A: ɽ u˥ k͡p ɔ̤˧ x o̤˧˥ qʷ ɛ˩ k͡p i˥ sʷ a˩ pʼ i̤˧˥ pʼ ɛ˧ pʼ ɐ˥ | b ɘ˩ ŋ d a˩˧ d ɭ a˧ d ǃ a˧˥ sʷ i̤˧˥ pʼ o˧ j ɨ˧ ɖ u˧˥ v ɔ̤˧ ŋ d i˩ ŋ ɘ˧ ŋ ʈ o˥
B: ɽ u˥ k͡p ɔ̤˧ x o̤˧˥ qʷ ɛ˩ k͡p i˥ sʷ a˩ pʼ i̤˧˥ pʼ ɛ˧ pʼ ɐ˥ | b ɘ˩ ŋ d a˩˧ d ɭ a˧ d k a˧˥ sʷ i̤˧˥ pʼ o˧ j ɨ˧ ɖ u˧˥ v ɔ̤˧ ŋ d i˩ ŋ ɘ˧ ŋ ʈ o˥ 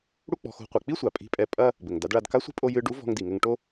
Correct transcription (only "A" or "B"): B